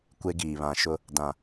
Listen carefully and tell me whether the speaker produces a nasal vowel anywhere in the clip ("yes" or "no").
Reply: yes